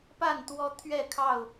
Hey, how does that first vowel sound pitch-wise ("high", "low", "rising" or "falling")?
falling